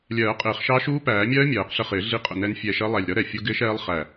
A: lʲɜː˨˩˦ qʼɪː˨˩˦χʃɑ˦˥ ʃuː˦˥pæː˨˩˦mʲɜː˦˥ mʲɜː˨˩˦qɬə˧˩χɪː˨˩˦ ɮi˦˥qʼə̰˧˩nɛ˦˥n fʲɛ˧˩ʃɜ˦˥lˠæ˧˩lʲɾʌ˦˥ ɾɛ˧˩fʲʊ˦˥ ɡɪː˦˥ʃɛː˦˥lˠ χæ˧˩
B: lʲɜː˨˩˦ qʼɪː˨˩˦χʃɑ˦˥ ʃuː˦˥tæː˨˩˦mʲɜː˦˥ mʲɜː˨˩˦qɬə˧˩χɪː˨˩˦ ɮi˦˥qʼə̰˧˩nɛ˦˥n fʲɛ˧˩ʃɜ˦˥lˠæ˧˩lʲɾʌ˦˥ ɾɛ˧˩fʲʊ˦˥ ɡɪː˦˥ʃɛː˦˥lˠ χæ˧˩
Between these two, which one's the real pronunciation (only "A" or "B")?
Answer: A